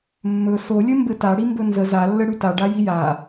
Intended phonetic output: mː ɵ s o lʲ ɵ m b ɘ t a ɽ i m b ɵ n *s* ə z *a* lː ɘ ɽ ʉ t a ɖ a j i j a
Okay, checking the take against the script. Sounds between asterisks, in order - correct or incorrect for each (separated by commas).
incorrect, correct